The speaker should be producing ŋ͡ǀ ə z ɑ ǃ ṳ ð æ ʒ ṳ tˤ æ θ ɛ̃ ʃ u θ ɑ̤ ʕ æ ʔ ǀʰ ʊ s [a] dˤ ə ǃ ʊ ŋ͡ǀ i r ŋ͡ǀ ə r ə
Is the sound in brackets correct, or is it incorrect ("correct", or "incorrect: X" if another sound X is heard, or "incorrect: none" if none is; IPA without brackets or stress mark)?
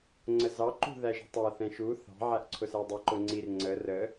incorrect: æ